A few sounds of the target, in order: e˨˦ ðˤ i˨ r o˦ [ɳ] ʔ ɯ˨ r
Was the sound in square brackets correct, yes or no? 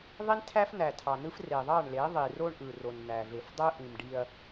yes